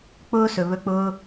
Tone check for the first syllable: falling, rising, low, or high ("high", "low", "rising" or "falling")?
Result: high